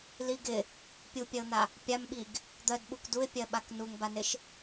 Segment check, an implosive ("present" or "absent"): present